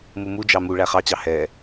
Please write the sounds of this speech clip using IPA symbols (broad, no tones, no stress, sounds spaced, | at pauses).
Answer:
m u m u d͡ʒ ɑ m u ɭ æ χ ɑ t͡ɕ ɑ h ɛː